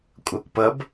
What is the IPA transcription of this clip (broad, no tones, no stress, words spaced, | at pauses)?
kʷʼʌːkʷpʌb